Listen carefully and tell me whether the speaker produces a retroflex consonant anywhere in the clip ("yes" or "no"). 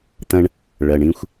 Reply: yes